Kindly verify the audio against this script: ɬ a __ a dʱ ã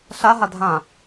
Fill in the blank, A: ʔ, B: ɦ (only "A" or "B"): B